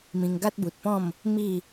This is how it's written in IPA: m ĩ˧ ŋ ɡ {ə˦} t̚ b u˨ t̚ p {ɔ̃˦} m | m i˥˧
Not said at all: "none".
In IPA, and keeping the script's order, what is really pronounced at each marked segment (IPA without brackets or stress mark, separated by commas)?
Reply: a˦, ɔ̃˥˧